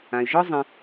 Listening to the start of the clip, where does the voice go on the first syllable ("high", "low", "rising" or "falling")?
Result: low